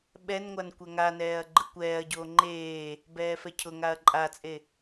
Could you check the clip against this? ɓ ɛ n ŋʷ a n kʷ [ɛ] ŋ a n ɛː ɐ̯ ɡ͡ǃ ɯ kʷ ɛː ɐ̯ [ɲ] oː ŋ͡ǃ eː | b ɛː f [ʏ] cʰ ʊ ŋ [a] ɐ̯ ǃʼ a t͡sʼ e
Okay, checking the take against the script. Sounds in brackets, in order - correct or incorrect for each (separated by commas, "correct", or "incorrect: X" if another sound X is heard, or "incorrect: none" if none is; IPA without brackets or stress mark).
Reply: correct, incorrect: ɟ, incorrect: ɛ, correct